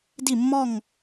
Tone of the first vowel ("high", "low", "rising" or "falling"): falling